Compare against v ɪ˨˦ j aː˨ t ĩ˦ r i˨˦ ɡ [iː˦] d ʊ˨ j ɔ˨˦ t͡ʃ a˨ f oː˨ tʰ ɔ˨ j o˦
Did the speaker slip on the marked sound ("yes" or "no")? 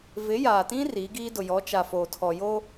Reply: no